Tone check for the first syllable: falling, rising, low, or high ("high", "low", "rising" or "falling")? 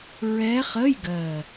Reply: rising